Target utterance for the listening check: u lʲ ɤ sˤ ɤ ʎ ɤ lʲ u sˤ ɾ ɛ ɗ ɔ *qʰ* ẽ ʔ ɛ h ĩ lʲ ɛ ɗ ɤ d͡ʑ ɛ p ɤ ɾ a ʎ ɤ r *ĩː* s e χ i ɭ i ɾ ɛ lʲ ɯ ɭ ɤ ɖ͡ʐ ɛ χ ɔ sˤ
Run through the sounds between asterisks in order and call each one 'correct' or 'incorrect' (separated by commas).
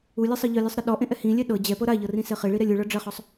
incorrect, incorrect